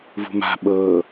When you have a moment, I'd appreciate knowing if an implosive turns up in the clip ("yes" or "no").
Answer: yes